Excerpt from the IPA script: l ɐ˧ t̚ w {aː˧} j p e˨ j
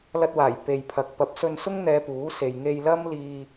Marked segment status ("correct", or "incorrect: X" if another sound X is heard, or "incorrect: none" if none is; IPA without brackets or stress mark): incorrect: aː˨˩